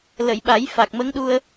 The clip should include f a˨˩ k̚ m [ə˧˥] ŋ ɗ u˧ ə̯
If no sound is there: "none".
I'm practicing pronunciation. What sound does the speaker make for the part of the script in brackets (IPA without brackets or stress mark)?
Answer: ə˧˥